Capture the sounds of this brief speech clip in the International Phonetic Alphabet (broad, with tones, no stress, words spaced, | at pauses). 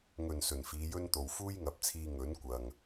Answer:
ŋɵ˨˩n sɵ˨˩nfiː˨˧jɵ˥nt̪o˨w fuː˥jŋɐ˨˥p̚t͡sʰiː˧ ŋɵ˨˥nkʷɐ˨ŋ